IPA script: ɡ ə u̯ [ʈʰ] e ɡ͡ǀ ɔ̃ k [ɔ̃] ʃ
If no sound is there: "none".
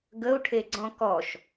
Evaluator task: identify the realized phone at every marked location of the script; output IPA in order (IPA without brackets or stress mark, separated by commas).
ʈʰ, ɔ